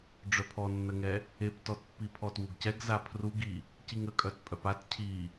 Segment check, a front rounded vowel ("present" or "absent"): present